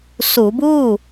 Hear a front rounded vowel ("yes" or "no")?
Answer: no